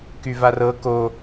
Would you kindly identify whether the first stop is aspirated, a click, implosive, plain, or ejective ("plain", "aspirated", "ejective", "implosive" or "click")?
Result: plain